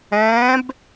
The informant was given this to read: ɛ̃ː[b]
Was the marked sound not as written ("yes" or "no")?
no